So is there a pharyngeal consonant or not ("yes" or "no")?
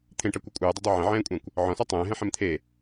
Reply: yes